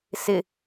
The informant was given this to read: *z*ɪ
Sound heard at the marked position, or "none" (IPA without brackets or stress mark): s